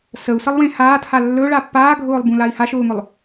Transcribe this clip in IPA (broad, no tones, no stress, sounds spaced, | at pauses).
s ə u̯ s ə lˠ w ẽ h aː t h a lː ɵ ɭ a pː aː ɡʱ ʊː lˠ b ũ l a i̯ h a ʃ ʊː ŋ ɵ lˠ